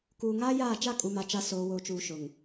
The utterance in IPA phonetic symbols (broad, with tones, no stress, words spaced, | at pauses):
kuː˨ŋaː˦jaː˦˨ t͡ʃa˦˨kʼu˨ma˨t͡ʃa˨˦ soː˨woː˨t͡ʃuː˨ ʃʊ˨ŋ